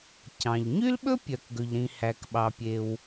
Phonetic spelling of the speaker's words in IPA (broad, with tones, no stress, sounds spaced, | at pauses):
c ɑ̃˩ ʎ ɲ y˥ l ɓ ɵ˥ pʲ œ˩ k ɡ ɵ˩ ʎ ɾ ĩ˩ h æ˩ k ɓ ɑ˩ pʲ e˩ w